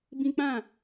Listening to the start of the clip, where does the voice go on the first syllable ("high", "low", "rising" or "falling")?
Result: high